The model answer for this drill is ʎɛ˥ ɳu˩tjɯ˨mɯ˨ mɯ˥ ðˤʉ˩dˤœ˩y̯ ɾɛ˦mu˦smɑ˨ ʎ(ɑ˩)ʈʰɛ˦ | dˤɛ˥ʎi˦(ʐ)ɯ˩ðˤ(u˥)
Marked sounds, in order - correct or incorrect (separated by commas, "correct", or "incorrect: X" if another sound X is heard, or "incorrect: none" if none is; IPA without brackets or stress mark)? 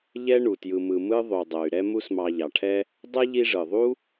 correct, correct, correct